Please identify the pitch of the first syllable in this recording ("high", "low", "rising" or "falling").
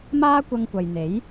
high